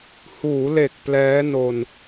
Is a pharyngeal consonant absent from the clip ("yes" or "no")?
yes